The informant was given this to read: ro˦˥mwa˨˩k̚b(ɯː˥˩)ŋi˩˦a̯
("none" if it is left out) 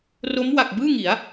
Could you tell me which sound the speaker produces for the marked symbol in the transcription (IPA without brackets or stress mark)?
ɯː˥˩